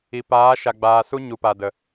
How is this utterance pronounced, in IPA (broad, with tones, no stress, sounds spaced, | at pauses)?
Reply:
i˨ p aː˨˦ ʃ a˨ ɡ͡b aː˨ s u˦ ɲ u˨ p a˨ d ə˨